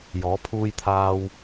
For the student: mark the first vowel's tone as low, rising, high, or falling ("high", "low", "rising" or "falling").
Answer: rising